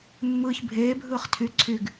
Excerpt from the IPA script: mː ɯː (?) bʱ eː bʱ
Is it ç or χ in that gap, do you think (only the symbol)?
ç